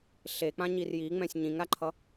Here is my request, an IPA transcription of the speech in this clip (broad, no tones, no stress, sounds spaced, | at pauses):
ɬ e k͡p ã ɲ i r j i ŋ͡m ɛ̃ sʲ ɲ ĩ ŋ ɾ a ǃʰ ʌ